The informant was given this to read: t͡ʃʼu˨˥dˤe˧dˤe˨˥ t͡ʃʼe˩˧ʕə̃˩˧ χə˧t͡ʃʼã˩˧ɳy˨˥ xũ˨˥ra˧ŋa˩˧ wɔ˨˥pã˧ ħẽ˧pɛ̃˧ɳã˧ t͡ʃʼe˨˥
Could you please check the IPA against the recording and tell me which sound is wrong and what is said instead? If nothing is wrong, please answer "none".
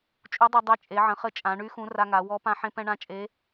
none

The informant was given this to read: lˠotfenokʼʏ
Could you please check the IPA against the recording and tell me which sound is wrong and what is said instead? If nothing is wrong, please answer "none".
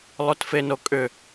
none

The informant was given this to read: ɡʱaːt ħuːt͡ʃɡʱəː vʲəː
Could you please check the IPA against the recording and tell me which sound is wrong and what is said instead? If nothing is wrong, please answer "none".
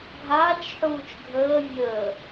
t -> t͡ʃ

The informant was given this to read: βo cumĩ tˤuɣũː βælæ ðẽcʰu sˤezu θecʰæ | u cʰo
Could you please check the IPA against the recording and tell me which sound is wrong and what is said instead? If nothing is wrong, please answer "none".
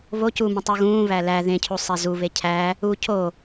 θ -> β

